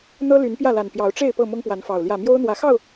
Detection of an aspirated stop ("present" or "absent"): absent